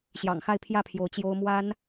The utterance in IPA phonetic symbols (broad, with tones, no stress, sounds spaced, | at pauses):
ɕ j ɑ̰˨˩ ŋ x a˥˧ ɪ̯ pʰ j ä˥˩ pʰ j o˧˥ ʊ̯ t͡ɕ j o˥ ʊ̯ m w a˥ n